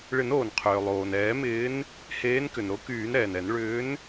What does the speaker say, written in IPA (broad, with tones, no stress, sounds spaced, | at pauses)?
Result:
ɭ ɪ˨˩˦ n oː˩ n qʰ ʏː˩ lˠ oː˩ n ɛː˨˩˦ m ɪː˨˦ n | h eː˨˦ n k ʏ˩ n ɾ o˨˦ k yː˨˩˦ n ɾ ɛː˩ n ɛ˨˩˦ n ɭ ʏː˨˦ n